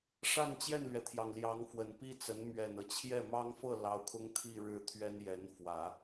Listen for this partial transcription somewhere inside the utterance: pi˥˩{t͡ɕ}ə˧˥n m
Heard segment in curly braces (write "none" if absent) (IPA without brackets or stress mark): t͡s